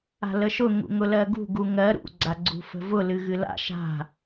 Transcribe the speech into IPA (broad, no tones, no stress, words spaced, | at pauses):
a̤ləʃʊ ŋṵŋʊlɜɡṳ ɡuŋɜ ɾṵ ɡ͡ǀaɡ͡ǀṳfə̤vʊ lɨɣɨla̰ ʃa̤